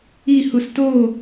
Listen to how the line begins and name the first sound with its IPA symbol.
i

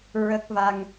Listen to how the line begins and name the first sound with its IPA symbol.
ɹ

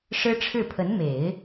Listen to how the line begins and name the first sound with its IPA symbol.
ʂ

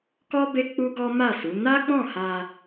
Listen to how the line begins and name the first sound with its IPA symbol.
k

